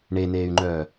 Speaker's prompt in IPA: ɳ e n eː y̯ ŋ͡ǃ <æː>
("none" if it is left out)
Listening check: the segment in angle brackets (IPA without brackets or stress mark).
œː